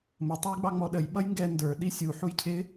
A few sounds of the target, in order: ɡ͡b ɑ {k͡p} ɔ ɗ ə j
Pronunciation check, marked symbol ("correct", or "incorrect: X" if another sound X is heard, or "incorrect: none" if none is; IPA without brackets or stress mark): incorrect: ŋ͡m